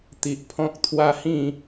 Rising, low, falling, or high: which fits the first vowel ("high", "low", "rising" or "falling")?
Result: low